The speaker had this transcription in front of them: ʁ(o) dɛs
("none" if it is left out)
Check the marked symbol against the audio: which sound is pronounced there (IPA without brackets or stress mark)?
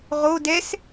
o